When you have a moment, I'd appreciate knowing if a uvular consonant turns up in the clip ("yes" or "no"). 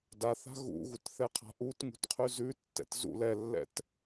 yes